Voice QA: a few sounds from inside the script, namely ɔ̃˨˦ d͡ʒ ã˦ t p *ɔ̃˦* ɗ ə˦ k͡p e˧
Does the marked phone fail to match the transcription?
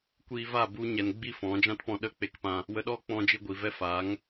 yes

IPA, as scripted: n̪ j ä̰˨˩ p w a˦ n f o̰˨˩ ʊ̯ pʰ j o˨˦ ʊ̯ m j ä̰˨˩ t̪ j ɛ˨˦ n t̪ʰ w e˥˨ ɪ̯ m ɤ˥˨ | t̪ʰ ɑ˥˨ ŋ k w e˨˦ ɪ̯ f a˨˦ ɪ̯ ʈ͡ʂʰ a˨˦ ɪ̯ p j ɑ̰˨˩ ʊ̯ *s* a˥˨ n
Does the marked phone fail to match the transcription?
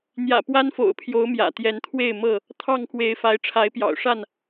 yes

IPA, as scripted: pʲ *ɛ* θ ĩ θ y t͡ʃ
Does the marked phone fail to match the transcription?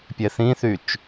no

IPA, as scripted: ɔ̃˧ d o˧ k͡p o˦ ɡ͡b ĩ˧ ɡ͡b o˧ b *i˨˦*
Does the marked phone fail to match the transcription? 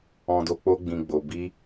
yes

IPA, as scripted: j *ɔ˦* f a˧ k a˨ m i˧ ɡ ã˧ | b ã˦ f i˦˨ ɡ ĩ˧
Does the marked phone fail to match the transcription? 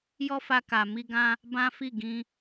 no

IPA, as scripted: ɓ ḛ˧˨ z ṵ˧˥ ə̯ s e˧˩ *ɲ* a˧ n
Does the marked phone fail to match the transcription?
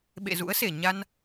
no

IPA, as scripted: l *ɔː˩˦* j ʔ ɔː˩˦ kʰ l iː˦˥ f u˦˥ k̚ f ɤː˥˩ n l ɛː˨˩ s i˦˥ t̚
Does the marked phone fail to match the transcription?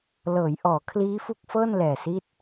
yes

